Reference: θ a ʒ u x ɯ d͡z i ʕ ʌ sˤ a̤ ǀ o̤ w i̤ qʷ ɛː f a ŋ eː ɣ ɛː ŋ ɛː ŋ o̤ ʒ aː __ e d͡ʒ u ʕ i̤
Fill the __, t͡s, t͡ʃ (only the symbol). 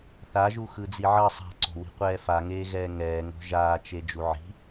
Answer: t͡ʃ